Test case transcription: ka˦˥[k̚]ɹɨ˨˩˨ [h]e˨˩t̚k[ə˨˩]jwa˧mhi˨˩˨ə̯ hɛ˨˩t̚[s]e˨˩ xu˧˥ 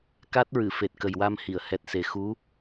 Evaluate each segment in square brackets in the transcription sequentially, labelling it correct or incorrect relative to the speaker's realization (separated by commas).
incorrect, incorrect, correct, correct